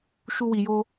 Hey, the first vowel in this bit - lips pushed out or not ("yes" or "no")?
yes